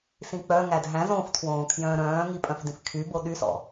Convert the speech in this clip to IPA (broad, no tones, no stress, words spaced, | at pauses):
sĩk͡pœŋæd ɦæ̃ zõftʰwõː kʰjœ̃ːɾœ̃ːŋi pʼœ̃fdĩfkʰybo ɗysɔ̰